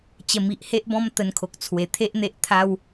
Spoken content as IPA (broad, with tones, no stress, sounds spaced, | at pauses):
t͡ɕ ə˨˩ m i˨ ʔ h e˦ ʔ b ɔ̃˦ m t̪ ə˧ n kʰ o˨ k̚ t͡sʰ w e˨˩ t̪ʰ e˦ ʔ n̪ e˦ ʔ t̪ʰ a˦ w